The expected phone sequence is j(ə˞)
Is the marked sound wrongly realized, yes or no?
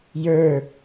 no